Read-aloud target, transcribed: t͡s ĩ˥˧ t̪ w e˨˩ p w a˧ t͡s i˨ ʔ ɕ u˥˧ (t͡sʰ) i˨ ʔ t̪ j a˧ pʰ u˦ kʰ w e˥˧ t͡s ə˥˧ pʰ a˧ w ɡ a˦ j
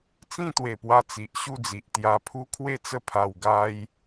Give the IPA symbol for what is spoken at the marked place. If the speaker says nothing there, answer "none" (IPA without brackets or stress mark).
d͡z